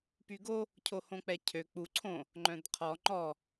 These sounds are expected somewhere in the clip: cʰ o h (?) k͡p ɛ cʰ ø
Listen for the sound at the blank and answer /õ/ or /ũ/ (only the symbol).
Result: õ